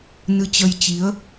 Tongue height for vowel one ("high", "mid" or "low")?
high